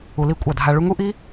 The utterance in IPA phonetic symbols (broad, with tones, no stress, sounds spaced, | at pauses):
u˧ l i˦˨ kʷʼ ɑ˦˨ dʱ a˧ ɭ u˦ ŋ u˦ ʔ i˦